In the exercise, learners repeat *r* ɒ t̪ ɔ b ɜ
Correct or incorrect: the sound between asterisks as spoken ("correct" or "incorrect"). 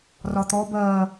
correct